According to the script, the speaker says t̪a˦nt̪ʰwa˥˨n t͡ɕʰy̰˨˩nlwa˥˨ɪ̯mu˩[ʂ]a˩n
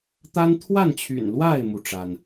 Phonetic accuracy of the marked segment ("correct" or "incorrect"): incorrect